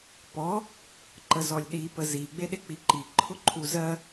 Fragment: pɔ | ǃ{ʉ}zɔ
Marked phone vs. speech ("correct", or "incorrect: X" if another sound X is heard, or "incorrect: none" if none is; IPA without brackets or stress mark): incorrect: ə